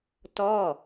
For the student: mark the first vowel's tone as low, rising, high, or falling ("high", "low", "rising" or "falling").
falling